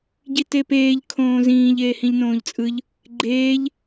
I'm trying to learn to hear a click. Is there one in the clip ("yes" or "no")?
yes